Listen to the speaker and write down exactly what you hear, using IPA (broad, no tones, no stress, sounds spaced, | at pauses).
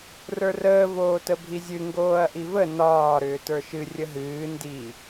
r ə˞ r əː v oː t ə bʱ i zʲ ɨ ŋ ɡ oː ɐ̯ ʔ i v ə n ɒː ɾ ʏː t ə˞ ʃ ɨ rʲ ə ɦ ɨː n d i